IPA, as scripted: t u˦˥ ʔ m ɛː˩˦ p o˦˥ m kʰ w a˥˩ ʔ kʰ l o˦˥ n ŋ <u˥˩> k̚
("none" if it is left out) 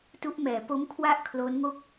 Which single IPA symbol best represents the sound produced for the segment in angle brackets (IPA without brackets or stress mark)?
o˥˩